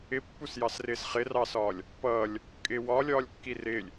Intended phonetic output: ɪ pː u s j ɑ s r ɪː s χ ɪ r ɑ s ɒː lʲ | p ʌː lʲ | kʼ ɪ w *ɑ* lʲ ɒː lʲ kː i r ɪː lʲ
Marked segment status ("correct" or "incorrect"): incorrect